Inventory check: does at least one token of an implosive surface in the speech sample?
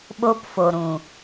yes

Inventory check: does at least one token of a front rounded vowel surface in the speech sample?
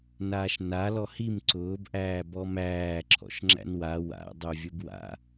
yes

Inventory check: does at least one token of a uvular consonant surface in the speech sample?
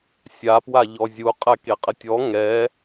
yes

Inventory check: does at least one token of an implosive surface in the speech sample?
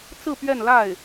no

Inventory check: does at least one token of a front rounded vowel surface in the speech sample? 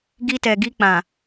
no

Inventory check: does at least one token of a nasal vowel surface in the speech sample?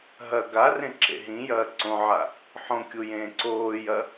yes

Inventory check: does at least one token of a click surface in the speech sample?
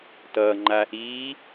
yes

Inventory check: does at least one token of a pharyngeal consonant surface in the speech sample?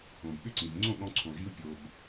no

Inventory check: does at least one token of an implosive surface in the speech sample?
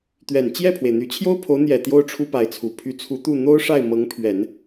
no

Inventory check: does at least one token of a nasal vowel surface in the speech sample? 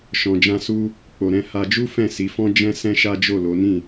yes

